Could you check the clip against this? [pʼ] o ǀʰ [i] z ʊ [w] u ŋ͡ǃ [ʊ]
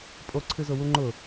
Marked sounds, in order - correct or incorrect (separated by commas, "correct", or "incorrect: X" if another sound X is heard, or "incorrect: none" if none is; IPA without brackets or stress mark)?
correct, incorrect: ɨ, correct, correct